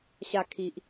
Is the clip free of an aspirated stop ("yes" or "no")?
no